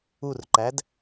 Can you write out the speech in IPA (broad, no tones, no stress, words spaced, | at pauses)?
urǃæd